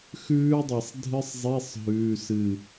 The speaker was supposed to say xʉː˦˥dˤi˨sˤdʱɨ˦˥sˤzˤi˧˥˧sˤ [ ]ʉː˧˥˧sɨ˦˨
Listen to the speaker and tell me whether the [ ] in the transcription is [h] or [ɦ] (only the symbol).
ɦ